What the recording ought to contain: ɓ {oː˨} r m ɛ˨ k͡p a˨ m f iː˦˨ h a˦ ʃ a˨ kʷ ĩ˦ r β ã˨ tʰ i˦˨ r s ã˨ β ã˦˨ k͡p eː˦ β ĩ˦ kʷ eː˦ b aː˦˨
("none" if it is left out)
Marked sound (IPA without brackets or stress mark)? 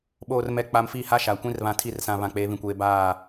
oː˨